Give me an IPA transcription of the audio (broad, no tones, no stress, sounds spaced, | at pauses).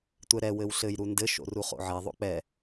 tʷ ɛ ɾ ɛ w ɘ w ɬ ɘ j ɾ u n d ɘ ʃ o̰ r u χ o̰ ʕ ɛ ðˤ o̰ k͡p ɛ